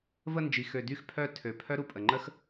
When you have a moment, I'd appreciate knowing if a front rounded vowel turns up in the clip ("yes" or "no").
yes